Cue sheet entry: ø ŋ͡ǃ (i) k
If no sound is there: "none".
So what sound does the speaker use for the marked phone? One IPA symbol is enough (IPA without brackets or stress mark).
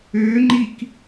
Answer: i